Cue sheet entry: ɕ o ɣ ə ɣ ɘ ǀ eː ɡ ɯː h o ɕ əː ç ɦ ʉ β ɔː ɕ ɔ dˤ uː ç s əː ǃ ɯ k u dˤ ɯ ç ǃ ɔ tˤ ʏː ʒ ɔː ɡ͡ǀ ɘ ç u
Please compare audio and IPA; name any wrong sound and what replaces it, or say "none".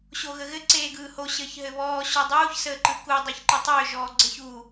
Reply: ʉ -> ɘ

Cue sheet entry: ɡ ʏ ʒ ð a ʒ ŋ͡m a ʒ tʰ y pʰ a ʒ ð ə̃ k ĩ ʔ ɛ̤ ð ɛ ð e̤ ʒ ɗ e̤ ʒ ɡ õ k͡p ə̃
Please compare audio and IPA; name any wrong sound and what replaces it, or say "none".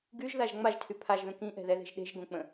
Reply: ʏ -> y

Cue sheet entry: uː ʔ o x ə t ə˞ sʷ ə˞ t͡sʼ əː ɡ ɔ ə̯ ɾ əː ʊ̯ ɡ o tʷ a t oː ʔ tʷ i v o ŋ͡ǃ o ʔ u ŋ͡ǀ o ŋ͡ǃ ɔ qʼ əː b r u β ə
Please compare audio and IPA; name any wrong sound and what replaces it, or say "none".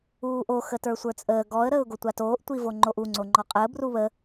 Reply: none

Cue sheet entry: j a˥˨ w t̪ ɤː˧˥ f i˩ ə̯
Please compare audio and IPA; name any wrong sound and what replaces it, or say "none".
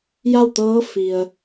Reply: none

